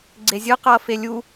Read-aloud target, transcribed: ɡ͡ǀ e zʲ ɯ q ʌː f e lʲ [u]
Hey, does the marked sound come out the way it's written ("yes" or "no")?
yes